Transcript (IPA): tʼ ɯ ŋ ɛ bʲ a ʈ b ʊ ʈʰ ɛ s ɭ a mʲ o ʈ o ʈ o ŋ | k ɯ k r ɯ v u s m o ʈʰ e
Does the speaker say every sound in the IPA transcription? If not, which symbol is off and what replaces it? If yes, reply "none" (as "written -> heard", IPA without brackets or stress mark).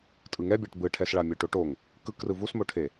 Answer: ʊ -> ɯ